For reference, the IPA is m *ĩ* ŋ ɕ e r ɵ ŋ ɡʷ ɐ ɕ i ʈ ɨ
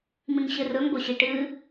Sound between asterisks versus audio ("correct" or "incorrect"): correct